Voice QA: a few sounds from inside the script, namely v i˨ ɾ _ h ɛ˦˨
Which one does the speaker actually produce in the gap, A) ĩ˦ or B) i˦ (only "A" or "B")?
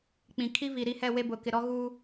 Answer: B